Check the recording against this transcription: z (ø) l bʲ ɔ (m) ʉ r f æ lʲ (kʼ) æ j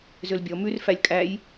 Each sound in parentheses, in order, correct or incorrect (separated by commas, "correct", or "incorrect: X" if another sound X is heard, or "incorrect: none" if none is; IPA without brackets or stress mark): correct, correct, correct